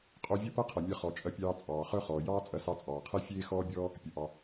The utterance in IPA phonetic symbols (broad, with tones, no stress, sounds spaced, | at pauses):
qʼ o˧ vʲ ɐ˥ p ɐ˥ qʰ ɐ˩ mʲ ɐ˧ χ ɔ˩ t͡ʃʼ ɐ˧ pʲ ɑː˧ t͡sʼ ɑː˩ χ œ˥ χ ɔː˩ j ɑː˥ t͡sʼ ɐ˧ s ɑ˧ t͡sʼ ɑː˩ qʰ e˥ fʲ eː˥ x ɔː˥ bʲ ɔː˥ | pʲ ɐ˩ ʔ ɑ˩